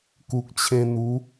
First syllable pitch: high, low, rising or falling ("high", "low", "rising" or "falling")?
low